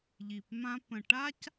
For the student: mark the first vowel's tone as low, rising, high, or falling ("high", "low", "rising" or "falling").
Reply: low